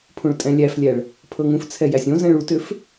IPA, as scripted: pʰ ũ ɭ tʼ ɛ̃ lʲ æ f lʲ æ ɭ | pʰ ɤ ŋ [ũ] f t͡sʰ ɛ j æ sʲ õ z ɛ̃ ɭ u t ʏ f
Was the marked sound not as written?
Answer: no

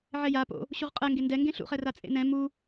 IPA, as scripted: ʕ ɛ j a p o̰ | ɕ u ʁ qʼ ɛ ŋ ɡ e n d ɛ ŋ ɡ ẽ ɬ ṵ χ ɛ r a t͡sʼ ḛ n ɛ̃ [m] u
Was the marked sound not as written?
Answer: no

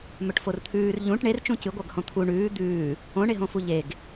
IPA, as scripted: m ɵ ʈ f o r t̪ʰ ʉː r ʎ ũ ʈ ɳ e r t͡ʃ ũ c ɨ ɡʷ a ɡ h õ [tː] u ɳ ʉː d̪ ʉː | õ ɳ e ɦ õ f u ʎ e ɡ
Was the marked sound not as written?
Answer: yes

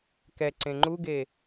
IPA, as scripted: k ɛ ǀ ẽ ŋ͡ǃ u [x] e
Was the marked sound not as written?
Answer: yes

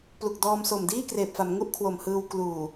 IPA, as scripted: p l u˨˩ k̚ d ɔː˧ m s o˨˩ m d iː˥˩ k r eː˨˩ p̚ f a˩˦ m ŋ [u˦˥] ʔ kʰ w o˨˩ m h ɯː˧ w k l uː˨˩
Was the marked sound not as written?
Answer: yes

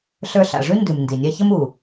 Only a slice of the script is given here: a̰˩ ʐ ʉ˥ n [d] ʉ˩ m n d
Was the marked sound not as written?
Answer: no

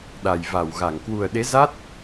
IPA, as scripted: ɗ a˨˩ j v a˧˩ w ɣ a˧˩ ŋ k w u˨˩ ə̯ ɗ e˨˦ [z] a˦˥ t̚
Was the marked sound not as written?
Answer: no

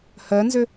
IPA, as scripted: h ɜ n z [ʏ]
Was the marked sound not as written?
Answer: no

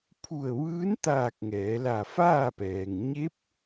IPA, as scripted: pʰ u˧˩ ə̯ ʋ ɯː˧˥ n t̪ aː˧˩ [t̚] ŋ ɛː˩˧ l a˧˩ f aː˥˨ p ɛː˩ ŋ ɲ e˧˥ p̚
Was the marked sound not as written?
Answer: yes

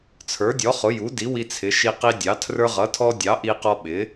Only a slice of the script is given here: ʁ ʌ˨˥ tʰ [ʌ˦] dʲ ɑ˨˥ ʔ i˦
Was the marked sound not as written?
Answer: yes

